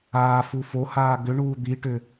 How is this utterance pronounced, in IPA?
aː f u f o h aː ɡ ʏ ɳ uː d̪ i ʈ ʏ

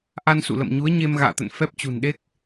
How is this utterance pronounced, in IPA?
ʔ a˧ n s ṵ˧˨ l ə̰˧˨ m ɲ u˨˦ ə̯ ɲ e˧ m ɣ a̰ː˧˨ t̪ ə̰˧˨ n f ɛ˦˥ p̚ t͡ɕ ṳ˨˩ n ɗ e˦˥ k̚

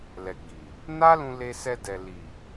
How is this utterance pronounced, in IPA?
l ɛ˨ ɡ͡b i˨ | n a˦ l ũ˧ l e˧ s ɛ˧ d ɛ˨ l i˨

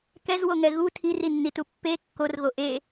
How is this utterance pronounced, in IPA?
k ɛ z w o ŋ ɛ ɣ u tʰ i r i nː i t u pː e kː o r ɣ o ʔ e

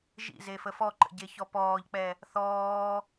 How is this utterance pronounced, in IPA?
ʒ ḭ z e f ə f ɔ ǃ ə̰ ɟ e ç ɔ p ɔː ʎ k͡p ɛ | θ ɔː

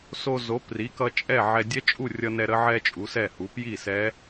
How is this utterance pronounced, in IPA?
s o˧ z o˨˥ p r i˨˥ k ʌ˧ t͡ʃʼ ɛ˥˨ ʕ ɛ˧ dʲ ɛ˦˥ t͡ʃʼ u˥˨ rʲ ʌ˧ n ɛ˧ ɾ ə˦˥ ʕ ɛ˧ t͡ʃʼ u˨˥ s ɛ˥˨ h u˨˥ p j i˥˨ s ɛ˦˥

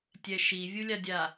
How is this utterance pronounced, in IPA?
tʲ ɛ ʃ i vʲ u lʲ a dʲ a

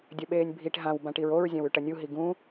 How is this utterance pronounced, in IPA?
dʲ ɐ ɓ eː nʲ bʱ i ʈ ɦ ã w b ã ʈ i ɹ o ɹ zʲ ã w ʉ ʈ ɐ nʲ u ɦ i ɡ ũ

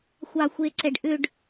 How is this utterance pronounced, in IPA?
xʷ ɑː xʷ e ǀ ɛ ɖ ʔ ʏ ɖ

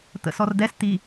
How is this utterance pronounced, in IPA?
t̪ ə̰ s ɔ r d̪ ɛ s t̪ i

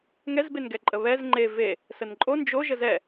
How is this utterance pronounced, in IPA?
ŋ ɛ z b e n ɡ ɛ ǃʼ ə β ɛ z ŋ͡ǃ e v e | s ə n ǃʼ o n d͡ʒ o ʒ ə z ɛ

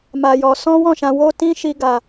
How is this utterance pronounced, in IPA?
m a˧ j ɔ˧ s ɔ̃˦ w ɔ̃˦˨ ʃ ã˧ w o˦ t ĩ˦ ʃ i˦ ɡ a˧

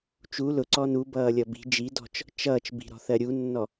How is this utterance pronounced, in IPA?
t͡ʃ u l ʊ ǀ ɔ n u b ʌː lʲ ʌ b i̤ d͡ʒ i d ɔ̤ t͡ʃ | t͡ʃ ʌː t͡ʃ b i̤ ɾ ɔ̤ θ ɜ ɾʲ u nː ɔ

